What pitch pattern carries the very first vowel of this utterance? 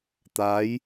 rising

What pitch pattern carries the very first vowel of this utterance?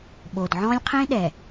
low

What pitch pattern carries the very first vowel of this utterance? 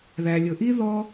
low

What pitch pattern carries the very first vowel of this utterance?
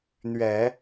low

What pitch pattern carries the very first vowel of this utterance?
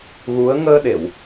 rising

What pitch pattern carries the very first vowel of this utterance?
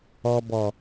low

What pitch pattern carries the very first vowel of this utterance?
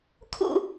falling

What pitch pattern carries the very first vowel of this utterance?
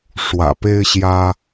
low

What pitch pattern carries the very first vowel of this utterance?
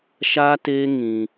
high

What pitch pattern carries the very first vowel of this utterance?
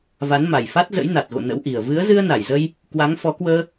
rising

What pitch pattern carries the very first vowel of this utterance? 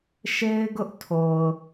high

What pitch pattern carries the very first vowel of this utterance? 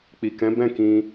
low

